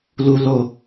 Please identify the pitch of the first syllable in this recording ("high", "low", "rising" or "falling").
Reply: low